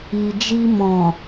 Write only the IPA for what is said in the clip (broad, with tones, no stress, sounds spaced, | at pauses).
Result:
i˨ d͡ʒ i˧ m ɔ̃˨